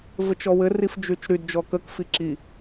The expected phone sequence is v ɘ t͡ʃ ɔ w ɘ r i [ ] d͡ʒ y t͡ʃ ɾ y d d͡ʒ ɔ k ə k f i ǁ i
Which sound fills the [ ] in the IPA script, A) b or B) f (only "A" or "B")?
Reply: B